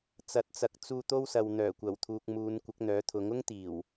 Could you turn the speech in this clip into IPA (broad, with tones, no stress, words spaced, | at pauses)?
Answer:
t͡sɐ˨˥t̚t͡sɐ˨˥k̚t͡suː˧ t̪o˥wsɐ˨wn̪œː˨˩ kʷɐ˨˩wt̪ʰuː˨k̚ muː˨˧nkʷɪ˨˥k̚n̪œː˨˥t̪ʰʊ˨˥ŋ ʊ˥ŋt̪iː˨˩w